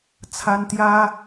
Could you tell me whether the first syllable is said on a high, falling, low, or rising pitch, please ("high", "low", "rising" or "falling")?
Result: high